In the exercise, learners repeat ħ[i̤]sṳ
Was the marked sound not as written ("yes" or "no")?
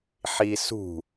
yes